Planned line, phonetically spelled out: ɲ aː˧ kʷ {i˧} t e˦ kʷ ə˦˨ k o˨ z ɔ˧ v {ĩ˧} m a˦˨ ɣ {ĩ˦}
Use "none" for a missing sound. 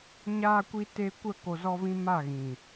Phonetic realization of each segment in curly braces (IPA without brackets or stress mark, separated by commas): i˧, ĩ˧, ĩ˨